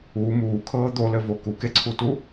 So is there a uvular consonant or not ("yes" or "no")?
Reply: no